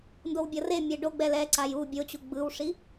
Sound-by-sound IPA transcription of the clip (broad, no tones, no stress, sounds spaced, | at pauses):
n d o w bʲ ʌ r e mʲ ɛ ɖ o ɡ͡b ɛ l ɛ ǀ a j u bʲ o t͡ɕ u ɡ͡b ɯ w ʂ i